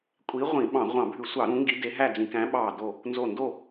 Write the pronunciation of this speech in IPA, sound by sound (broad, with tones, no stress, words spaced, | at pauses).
kʷʼi˨˦ ʁʷĩ˧˩˧ɓɑ̃˧˩˧ ʁʷɑ̃˧˩˧bʱʉ˧˩˧sʷɑ˧˩˧ ɾũ˨˦ŋɡi˨˦ de˨˦ɦæ˥˨ d͡zĩ˧˩˧kæ̃˨˦ɓɑː˧˩ do˧˩ | nzo˧˩ndo˥˨